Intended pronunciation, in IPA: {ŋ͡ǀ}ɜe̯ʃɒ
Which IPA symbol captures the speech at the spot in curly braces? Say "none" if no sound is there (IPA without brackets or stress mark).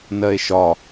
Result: n